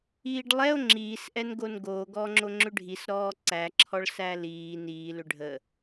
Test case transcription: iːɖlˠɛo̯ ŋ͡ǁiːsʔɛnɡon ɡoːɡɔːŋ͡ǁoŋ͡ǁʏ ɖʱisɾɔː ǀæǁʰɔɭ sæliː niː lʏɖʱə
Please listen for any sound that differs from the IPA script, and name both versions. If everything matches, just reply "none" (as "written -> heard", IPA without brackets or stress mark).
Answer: none